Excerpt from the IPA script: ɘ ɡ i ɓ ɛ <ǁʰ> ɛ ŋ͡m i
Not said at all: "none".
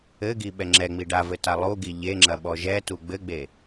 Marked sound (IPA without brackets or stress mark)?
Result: ŋ͡ǁ